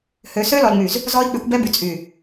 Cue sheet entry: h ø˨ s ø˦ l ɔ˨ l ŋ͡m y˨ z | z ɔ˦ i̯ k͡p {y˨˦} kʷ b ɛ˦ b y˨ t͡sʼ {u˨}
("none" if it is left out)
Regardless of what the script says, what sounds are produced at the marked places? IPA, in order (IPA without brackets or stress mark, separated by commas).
y˨˦, y˨